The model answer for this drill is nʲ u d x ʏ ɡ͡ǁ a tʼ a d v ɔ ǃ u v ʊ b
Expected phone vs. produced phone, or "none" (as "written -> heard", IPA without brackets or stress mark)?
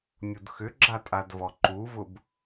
none